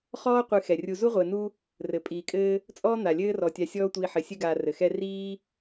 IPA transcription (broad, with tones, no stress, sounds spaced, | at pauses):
χ ɔː˥ qʷ ɨ˨ x ɛ˩ rʲ u˨ z u˥ ʁʷ ɘː˨ n u˦ | r ɘ˩ pʼ iː˩ kʼ ɘː˦ | t͡sʼ ɔː˥ n̪ a˩ lʲ ɘː˥ r ɔ˨ tʲ a˨ sʲ ɔː˦ tʷ iː˨ ħ ɘ˩ sʲ ɘ˦ ɡ aː˨ r ɘ˩ x ɛ˦ r iː˦